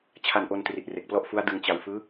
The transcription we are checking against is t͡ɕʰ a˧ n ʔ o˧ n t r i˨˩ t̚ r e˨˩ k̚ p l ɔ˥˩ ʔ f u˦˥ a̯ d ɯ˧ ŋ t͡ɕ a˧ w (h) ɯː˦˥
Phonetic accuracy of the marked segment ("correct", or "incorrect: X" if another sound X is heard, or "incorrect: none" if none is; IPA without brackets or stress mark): incorrect: f